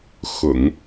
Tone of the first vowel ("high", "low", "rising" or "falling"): low